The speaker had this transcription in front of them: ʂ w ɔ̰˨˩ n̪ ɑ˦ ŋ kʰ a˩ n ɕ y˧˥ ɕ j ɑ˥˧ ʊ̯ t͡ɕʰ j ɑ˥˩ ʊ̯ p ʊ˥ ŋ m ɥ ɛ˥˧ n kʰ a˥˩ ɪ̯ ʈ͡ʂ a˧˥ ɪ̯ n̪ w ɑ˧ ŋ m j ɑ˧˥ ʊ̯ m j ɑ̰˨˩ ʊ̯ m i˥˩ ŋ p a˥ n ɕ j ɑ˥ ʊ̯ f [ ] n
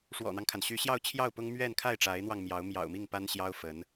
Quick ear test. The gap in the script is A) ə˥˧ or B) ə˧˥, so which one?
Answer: B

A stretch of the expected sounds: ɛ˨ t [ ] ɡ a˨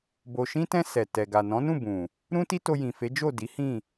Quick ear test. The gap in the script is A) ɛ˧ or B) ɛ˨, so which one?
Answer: B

